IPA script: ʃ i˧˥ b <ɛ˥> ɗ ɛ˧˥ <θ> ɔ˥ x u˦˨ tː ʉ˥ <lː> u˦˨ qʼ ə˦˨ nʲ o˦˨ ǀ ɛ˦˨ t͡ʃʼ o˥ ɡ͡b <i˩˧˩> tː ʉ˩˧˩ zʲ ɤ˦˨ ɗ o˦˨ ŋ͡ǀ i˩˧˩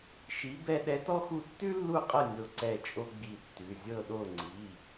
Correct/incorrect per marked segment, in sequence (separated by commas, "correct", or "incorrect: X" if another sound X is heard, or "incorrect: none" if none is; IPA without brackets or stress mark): correct, incorrect: t, correct, incorrect: i˦˨